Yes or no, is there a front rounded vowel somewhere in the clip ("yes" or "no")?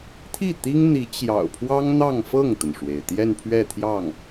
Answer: no